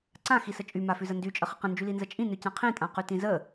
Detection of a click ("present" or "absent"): present